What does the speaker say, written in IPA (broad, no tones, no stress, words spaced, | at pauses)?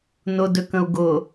nʊdøkə̃u̯ ɡʊ